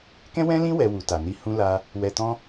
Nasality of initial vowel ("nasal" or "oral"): nasal